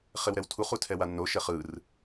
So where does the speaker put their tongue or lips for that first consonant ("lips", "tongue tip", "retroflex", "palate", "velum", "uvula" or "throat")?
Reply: uvula